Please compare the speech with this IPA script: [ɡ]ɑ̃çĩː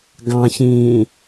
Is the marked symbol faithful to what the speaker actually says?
yes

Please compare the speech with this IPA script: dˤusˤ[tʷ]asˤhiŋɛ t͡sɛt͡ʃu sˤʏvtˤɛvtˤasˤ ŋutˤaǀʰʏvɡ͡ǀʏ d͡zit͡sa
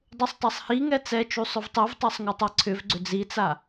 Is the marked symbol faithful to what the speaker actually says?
no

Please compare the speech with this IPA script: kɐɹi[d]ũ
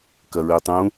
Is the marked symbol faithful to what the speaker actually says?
no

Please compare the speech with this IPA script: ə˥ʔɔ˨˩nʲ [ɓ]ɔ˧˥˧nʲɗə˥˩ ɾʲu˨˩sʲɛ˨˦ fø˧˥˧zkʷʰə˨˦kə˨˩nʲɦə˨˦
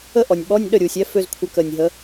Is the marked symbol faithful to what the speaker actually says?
yes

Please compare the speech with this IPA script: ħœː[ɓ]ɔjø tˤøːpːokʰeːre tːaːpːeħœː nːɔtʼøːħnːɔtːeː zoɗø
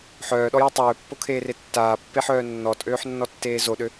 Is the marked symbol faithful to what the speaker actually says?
no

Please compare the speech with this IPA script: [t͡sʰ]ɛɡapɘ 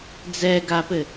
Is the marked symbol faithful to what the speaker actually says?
no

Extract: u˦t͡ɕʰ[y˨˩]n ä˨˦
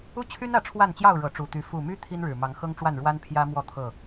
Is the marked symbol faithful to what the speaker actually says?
no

